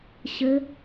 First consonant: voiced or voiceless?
voiceless